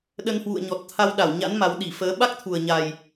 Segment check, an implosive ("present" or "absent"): present